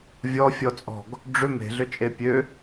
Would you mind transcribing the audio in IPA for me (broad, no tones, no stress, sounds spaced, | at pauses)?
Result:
vʲ ɔ fʲ ɔ t͡sʼ ɔ̤ ɡ | ɖ͡ʐ ʏ m e̤ ɮ ʏ t͡ʃʼ e pʲ ø